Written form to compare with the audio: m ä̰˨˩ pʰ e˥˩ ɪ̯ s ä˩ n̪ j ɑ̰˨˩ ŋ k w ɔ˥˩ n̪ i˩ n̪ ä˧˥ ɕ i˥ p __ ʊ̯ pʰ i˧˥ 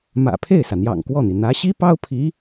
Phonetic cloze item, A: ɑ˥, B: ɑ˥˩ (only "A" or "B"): A